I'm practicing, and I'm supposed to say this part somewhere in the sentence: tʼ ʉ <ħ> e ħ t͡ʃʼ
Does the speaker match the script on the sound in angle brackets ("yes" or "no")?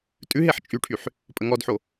no